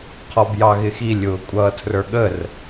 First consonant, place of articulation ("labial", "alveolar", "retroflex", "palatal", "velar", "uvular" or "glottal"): uvular